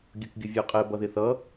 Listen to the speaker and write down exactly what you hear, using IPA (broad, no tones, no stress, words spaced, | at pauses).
ɡʲʌkɡʲʊvʲɔqʼɛ bʌðɪθʌ